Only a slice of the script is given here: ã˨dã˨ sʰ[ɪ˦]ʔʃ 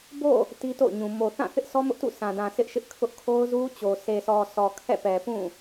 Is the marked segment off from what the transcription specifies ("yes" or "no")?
no